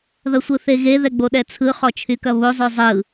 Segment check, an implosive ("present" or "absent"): present